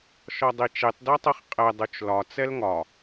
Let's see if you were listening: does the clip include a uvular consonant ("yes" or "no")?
yes